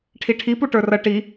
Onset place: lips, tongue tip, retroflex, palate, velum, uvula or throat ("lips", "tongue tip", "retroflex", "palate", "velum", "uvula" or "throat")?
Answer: retroflex